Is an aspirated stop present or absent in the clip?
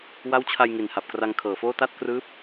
present